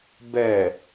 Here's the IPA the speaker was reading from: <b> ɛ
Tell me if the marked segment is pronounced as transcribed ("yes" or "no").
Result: yes